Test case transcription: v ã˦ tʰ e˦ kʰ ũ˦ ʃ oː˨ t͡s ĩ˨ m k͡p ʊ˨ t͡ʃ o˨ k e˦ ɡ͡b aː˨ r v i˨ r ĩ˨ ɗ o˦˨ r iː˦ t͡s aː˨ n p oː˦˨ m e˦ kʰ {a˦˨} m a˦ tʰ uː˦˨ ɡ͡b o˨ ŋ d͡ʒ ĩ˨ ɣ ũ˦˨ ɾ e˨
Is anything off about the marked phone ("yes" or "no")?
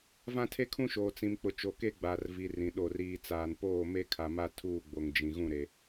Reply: yes